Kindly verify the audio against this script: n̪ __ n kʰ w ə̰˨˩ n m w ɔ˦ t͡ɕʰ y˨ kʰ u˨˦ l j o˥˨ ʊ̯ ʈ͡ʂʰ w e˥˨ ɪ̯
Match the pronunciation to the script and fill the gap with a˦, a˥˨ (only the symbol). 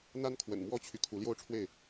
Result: a˦